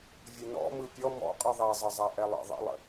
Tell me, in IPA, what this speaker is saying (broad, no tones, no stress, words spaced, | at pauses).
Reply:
vʲənɔ̰ mɯpʲɔ mɔ̰qʼɯ ðˤɛzˤəzˤa ʔɛlˠə̰ ðˤə̰lˠə̰